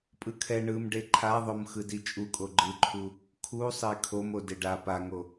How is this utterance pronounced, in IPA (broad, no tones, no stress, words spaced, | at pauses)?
pʼɯkʰɛ ɳɯmɖe ǃʰaðˤom xɯdit͡ʃʼukʼo ɡ͡ǃɯǃʰu | kʰusˤe kʰom odeɖa paŋo